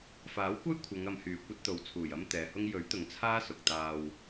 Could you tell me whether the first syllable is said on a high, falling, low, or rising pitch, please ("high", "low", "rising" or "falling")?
rising